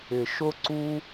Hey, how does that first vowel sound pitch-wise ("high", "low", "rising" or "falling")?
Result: low